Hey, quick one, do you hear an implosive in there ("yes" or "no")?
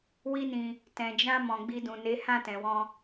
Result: no